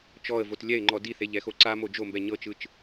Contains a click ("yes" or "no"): yes